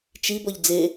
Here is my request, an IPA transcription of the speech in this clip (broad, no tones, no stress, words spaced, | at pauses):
t͡ʃi bɔʎd͡ze